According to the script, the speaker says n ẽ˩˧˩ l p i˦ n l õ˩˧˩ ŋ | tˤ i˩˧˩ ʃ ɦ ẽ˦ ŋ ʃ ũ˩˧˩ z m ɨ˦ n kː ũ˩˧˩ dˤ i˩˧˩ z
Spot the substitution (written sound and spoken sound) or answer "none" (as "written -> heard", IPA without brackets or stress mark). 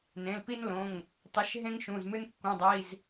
none